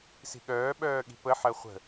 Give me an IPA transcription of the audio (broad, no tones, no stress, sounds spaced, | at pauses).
s i̤ ɠ œː ɓ œː ɠ i̤ p ə ħ ɜ χʷ ə̤